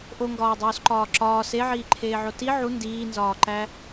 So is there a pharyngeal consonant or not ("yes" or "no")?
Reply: yes